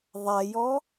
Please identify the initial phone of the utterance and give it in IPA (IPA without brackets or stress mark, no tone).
ðˤ